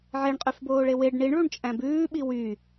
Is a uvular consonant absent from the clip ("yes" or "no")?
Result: no